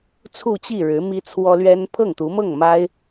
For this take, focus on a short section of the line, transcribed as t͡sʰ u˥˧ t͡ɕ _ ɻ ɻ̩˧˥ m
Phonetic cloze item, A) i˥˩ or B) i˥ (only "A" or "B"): A